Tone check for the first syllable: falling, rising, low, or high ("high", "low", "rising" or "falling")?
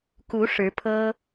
rising